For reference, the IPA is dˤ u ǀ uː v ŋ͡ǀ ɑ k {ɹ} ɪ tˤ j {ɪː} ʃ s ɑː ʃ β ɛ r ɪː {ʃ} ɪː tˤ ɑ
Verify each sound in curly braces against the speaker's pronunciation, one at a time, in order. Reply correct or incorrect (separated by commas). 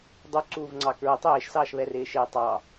correct, correct, correct